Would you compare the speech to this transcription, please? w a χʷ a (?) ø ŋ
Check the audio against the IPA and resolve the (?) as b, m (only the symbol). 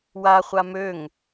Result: m